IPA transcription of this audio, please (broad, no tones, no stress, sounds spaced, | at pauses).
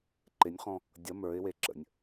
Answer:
ǃ ɪ nʲ χ ɔ̃ | dʲ ʌ m ə˞ ɪ̯ w e ǁ ə̰ nʲ